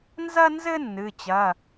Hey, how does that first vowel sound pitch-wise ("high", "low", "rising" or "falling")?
high